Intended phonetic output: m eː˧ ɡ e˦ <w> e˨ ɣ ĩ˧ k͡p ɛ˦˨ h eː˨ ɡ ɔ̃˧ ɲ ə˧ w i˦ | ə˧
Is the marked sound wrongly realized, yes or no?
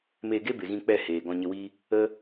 yes